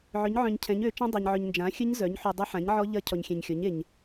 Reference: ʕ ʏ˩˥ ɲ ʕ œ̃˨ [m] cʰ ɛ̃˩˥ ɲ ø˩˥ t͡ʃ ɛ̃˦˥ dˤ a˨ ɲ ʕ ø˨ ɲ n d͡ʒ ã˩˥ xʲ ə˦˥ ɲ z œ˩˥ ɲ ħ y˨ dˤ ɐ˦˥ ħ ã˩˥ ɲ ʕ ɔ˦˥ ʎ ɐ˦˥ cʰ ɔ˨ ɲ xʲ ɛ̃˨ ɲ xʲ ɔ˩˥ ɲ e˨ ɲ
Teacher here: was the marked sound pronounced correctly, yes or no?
no